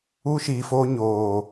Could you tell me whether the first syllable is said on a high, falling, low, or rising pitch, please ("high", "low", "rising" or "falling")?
high